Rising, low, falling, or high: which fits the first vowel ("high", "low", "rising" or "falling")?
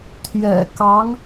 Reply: low